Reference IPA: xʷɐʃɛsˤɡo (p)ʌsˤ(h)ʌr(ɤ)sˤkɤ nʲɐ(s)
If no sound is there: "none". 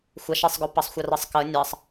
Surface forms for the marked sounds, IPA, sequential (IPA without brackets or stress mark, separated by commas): p, xʷ, ɤ, sˤ